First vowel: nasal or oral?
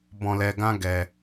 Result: nasal